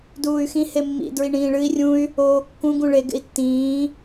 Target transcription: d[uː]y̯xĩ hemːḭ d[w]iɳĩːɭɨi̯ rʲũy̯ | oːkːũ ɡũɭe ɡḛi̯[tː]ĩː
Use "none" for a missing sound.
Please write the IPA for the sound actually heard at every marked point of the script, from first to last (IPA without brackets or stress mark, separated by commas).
uː, ɹ, tː